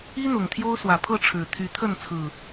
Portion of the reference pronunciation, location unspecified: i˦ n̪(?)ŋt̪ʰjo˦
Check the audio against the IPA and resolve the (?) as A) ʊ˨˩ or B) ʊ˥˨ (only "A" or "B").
A